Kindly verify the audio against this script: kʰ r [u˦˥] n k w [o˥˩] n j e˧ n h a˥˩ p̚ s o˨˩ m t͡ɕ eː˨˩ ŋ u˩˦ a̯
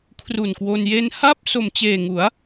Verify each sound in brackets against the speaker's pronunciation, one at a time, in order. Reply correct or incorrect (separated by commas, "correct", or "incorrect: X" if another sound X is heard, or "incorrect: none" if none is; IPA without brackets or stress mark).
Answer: incorrect: u˨˩, incorrect: o˧